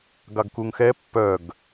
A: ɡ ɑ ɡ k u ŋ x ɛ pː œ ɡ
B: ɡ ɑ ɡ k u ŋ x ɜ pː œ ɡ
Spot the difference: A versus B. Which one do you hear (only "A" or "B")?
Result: A